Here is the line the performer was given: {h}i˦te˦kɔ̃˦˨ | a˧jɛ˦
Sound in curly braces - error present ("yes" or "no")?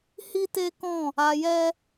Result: no